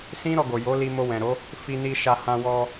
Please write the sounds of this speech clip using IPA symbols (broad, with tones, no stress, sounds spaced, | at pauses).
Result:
s ĩ˦ ɾ ɔ˧ ɡ o˨ j o˨˦ l i˧ m o˧ w ɛ̃˨ ɾ o˨˦ | f i˧ n i˧ ʃ a˧ h ã˧ w ɔ˧